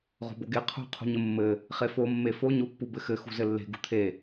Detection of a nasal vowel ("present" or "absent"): absent